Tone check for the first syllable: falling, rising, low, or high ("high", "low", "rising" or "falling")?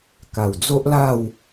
low